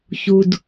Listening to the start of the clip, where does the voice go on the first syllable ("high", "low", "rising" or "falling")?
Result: low